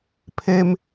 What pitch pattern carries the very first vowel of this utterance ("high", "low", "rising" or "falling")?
high